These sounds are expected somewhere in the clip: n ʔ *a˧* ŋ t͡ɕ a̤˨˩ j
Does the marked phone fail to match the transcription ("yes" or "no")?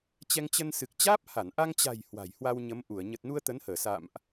no